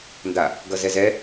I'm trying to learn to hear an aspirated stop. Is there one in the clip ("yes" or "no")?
no